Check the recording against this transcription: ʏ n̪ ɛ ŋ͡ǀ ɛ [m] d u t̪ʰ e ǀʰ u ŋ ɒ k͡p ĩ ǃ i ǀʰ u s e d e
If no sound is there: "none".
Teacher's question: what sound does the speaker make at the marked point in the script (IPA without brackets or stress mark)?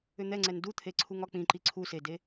n